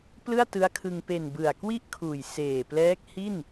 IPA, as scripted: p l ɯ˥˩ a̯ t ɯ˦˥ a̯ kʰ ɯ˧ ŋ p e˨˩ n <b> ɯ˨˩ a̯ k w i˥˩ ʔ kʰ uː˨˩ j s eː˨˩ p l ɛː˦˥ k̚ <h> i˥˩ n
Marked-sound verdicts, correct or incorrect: correct, correct

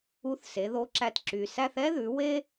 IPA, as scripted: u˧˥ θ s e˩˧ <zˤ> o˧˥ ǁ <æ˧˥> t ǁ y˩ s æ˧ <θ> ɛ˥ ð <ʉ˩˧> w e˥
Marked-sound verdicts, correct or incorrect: incorrect, incorrect, correct, correct

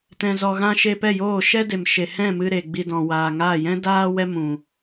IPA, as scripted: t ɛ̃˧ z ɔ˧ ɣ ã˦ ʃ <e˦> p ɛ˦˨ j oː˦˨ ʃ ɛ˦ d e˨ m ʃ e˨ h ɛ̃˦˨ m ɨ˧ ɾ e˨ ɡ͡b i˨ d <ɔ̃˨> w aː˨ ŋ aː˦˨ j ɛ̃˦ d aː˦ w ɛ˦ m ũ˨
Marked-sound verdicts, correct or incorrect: incorrect, correct

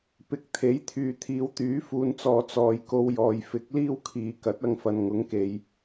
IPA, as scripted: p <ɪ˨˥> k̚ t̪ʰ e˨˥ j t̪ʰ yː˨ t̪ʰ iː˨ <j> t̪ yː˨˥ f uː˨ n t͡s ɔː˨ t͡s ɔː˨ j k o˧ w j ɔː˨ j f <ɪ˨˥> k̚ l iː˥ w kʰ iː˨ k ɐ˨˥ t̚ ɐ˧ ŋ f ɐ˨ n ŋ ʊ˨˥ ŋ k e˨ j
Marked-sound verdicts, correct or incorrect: correct, incorrect, correct

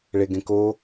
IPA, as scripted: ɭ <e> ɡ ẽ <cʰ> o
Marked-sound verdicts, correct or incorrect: correct, incorrect

